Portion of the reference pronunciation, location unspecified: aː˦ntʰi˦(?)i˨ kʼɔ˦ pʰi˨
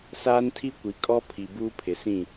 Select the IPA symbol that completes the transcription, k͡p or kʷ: kʷ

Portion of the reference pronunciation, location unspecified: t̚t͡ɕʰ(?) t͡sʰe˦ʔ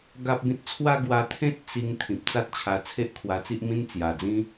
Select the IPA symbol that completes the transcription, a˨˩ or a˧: a˧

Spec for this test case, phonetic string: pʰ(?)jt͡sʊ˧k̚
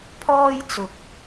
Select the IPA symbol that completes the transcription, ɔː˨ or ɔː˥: ɔː˥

